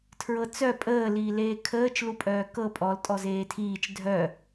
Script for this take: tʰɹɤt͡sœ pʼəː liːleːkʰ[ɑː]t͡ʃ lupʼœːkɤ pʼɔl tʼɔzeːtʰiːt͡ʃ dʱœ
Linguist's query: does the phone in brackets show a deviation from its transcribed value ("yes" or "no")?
yes